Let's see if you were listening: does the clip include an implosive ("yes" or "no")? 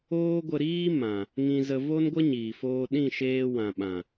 yes